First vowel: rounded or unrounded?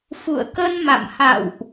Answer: rounded